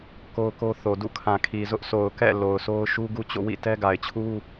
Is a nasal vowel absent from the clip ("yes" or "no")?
no